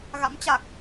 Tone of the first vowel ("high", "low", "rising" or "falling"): rising